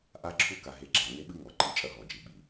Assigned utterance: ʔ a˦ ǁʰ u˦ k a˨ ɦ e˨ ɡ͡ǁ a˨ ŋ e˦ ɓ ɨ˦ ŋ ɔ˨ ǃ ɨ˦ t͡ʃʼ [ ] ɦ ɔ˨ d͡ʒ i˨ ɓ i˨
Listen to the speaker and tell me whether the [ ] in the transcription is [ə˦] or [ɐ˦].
ɐ˦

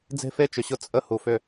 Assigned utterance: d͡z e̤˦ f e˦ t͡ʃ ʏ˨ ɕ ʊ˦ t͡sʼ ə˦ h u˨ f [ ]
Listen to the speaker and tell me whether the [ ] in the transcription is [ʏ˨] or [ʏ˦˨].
ʏ˦˨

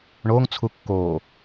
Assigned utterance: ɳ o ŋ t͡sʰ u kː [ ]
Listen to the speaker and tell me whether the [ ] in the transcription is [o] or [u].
o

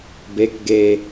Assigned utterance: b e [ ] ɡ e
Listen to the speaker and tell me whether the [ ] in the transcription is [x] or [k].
k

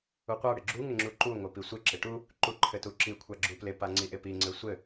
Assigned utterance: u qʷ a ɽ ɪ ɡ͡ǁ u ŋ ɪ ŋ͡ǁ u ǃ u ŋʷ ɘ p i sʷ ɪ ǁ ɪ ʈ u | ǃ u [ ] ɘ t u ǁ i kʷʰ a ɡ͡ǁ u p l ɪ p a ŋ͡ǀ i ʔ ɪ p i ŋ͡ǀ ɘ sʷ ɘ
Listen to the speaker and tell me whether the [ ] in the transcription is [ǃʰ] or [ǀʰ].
ǃʰ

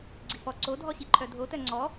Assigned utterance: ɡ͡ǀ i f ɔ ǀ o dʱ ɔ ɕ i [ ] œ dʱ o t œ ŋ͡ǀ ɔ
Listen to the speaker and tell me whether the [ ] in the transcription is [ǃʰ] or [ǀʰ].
ǃʰ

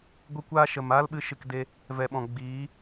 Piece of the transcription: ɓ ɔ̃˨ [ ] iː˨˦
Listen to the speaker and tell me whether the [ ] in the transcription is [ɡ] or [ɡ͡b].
ɡ͡b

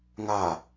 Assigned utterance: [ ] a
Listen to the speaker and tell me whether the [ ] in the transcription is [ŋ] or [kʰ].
ŋ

